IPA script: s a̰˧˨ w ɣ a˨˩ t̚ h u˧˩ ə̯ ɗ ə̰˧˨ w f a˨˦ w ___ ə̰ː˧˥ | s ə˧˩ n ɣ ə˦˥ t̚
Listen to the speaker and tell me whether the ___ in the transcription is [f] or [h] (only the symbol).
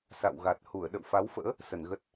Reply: f